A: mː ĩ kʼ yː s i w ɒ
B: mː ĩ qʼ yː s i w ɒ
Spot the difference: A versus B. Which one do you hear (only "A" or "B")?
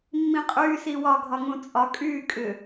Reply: B